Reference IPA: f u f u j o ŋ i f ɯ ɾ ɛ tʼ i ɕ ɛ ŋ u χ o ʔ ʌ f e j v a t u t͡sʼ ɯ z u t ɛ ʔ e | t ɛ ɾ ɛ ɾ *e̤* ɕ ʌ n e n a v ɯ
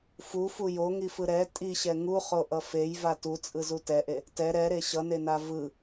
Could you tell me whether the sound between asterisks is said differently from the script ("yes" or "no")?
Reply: yes